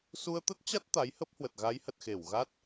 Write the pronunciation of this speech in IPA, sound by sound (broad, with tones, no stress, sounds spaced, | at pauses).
s u˧ ə̯ t̪ ə˦˥ t̚ t͡ɕ a˦˥ t̚ t̪ a˨˦ j h ə˦˥ p̚ h w ə˨˩ t̚ ɣ a˨˦ j h ə˨˩ t̚ x e˧˩ w ɣ a˦˥ t̚